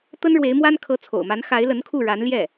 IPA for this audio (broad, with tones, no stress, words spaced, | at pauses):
t̪ə˥nɻwe˧˥ɪ̯mwa˥n kʰɤ˧˥t͡sʰo̰˨˩ʊ̯ma˧˥n xa˧˥ɪ̯lə˧˥nkʰu˥˩ ɻa˧˥nljɛ˥˩